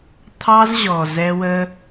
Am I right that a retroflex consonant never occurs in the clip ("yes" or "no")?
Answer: yes